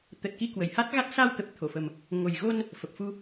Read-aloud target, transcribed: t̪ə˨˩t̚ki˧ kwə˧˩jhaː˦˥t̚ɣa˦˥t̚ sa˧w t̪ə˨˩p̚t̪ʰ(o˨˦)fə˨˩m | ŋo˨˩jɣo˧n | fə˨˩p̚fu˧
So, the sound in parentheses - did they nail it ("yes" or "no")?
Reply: no